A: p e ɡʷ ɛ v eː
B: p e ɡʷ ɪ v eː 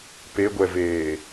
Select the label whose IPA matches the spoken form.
A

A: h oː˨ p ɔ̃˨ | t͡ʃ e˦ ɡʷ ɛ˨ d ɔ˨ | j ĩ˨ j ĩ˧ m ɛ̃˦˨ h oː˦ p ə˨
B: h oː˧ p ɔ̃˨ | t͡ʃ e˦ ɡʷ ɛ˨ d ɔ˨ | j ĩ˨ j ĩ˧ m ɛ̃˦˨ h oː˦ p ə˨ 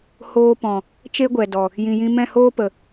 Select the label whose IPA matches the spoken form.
B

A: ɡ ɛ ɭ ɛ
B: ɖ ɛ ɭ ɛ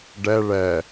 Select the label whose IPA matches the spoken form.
B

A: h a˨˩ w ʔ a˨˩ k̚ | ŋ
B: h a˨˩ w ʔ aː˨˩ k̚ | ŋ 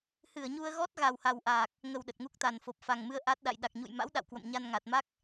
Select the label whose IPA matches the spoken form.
B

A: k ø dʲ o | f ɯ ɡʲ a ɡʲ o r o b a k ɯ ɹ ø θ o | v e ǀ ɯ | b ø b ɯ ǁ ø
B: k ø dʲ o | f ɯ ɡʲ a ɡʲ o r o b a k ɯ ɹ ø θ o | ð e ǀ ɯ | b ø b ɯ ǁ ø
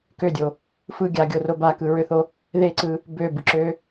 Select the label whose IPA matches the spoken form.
B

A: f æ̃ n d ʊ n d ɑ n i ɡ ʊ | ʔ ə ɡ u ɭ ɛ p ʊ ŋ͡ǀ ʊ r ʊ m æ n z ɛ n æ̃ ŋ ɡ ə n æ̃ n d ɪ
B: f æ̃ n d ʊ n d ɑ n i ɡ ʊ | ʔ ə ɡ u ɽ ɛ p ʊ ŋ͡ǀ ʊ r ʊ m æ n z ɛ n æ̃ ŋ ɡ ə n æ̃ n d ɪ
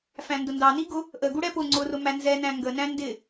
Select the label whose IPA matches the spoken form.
B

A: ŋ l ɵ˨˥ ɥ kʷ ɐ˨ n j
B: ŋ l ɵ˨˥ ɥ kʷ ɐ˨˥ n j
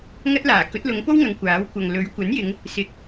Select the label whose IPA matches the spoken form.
B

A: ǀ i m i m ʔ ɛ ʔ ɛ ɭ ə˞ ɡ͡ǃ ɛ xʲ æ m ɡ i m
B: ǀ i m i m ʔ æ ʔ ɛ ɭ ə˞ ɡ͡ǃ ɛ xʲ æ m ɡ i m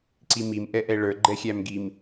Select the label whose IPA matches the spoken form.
A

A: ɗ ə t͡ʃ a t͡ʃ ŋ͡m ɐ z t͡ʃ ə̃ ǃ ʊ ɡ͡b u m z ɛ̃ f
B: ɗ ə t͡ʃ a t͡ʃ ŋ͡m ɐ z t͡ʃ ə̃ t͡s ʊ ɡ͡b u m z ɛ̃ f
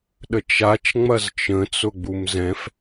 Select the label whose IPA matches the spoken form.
B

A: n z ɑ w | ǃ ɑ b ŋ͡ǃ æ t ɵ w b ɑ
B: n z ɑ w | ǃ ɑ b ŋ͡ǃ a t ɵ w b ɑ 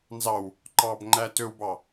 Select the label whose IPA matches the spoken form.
A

